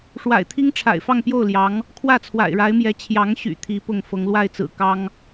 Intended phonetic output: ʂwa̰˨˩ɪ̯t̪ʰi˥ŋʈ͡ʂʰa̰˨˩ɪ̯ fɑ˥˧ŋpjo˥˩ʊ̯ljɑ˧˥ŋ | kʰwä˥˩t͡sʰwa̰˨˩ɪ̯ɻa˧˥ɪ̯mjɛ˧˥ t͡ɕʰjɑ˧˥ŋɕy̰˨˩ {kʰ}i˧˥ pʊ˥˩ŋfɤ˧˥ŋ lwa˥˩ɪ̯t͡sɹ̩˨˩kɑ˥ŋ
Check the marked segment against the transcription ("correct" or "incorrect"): incorrect